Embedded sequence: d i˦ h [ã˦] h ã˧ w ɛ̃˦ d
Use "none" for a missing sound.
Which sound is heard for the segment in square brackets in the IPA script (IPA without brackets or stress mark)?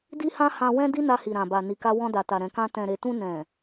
ã˦